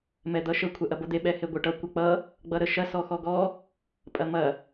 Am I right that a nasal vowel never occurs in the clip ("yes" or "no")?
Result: yes